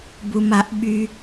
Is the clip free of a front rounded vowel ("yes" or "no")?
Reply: no